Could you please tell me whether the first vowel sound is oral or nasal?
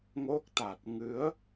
oral